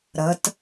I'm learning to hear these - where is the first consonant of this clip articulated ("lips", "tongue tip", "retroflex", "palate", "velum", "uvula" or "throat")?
tongue tip